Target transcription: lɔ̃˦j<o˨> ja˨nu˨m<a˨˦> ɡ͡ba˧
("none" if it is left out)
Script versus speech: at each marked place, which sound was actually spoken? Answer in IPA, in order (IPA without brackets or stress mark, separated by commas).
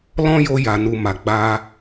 o˧, a˨